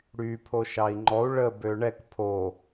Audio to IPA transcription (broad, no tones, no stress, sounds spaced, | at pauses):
ɽ y pʰ o ʃ ɑ i̯ ŋ͡ǃ ɔ u̯ ɭ ə b ø ɳ ɛ k pʰ o